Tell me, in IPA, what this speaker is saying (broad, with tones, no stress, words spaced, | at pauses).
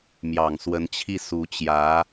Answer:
mjɑ˨˩ŋswə˧˥nt͡ɕʰi˥˩ su˧˥t͡ɕjä˧˥